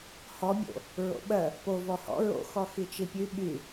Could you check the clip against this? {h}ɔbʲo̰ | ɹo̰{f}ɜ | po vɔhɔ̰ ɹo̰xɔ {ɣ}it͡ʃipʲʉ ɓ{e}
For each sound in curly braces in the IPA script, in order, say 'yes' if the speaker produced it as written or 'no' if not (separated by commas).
yes, no, no, no